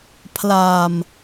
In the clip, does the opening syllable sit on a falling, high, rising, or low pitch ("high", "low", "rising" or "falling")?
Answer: low